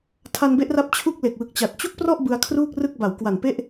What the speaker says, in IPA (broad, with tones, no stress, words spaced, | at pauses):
tʰa˧nbe˦˥ʔra˦˥p̚ t͡ɕʰu˥˩k̚le˨˩k̚wɯ˨˩k̚t͡ɕa˨˩t̚ t͡ɕu˥˩k̚prɔ˥˩ʔ bɯ˧a̯kʰruː˥˩k̚rɯ˥˩k̚ ba˩˦w kwa˨˩npe˥˩ʔ